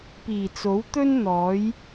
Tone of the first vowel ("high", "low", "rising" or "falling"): low